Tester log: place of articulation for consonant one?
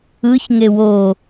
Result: palatal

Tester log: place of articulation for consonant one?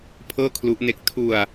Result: labial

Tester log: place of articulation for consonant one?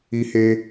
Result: glottal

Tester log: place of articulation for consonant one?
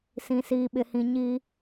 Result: alveolar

